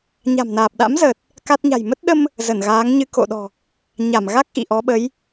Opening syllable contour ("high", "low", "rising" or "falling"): low